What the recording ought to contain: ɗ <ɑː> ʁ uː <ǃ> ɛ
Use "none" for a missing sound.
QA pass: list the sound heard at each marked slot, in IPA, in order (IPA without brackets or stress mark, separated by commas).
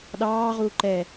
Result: ɑː, ǃ